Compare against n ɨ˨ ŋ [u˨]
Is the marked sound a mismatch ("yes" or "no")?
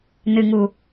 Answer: no